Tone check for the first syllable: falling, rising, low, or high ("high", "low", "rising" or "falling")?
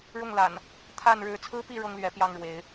falling